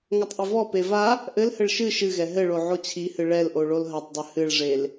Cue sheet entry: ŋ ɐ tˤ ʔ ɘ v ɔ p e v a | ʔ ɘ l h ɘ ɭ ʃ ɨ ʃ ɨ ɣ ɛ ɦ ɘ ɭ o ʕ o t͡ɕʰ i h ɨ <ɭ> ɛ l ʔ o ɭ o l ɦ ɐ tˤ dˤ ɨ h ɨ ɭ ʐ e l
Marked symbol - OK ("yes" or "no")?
yes